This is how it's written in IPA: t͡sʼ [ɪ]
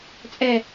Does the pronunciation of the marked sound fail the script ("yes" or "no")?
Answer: yes